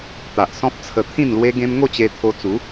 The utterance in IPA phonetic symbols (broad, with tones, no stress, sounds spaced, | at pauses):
t̪ a˨ ʔ s ɔ̃˦ p̚ t͡sʰ ə˧ t̪ʰ ĩ˥˧ n l w e˦ ɡ ẽ˦ m ŋ o˥˧ t͡ɕ e˧ t̪ʰ o˧ t͡s u˨˦